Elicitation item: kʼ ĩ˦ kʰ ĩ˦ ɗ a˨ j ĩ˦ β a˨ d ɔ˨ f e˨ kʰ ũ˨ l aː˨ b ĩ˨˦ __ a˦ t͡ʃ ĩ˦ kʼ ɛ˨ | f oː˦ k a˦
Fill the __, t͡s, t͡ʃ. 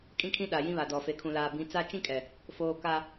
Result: t͡s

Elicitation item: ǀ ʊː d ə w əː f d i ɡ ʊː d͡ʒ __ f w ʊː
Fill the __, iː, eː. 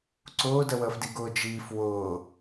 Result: iː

